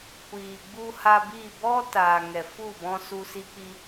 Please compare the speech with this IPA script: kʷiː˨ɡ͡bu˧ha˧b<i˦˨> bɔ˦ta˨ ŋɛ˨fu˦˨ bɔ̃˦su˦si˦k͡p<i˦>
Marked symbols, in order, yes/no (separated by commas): yes, yes